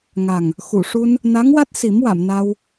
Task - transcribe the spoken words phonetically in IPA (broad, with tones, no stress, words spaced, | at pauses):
ŋa˨˩ŋ | xu˨˩˨ʂu˧n | na˧˥ŋwa˦˥t̚ si˨˩˦mwa˨˩˨mna˧w